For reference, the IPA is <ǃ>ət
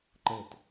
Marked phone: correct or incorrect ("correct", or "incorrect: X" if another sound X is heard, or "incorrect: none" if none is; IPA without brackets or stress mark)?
correct